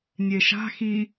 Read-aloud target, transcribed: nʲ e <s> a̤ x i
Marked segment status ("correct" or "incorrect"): incorrect